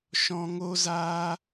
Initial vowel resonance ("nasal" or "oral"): nasal